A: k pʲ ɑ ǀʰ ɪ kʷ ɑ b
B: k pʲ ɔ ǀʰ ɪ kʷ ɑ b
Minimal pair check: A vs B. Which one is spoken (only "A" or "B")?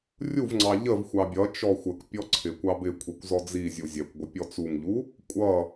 B